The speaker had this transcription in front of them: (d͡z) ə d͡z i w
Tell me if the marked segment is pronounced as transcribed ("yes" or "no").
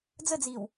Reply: yes